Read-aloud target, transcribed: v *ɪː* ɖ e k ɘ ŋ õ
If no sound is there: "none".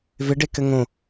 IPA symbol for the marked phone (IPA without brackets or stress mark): ɪ